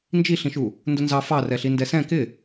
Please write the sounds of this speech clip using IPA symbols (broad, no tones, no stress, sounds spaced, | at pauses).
n d͡ʒ i ɬ ĩ ʃ u | n d ʊ n z ɑ f ɑ r ɛ ɬ i n d ɛ s ɛ̃ k ɪ